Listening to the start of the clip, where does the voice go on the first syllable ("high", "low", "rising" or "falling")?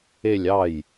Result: falling